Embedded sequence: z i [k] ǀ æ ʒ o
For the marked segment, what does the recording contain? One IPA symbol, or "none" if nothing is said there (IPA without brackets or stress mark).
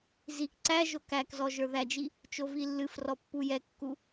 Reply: k